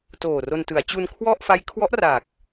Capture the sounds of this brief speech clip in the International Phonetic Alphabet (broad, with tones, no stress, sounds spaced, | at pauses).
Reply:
t oː˨˩ r o˧ n t ɯ˩˦ a̯ t͡ɕ u˧ n kʰ w ɔ˥˩ ʔ f a˦˥ j kʰ w ɔ˦˥ ʔ r a˨˩ k̚